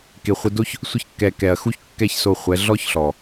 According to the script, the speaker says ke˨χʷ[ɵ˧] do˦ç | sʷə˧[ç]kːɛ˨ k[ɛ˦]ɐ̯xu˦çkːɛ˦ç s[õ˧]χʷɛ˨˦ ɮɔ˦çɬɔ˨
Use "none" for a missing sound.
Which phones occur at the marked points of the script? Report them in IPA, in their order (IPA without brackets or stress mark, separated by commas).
ə˧, ç, ɛ˨, o˧